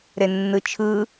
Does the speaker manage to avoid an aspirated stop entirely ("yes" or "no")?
no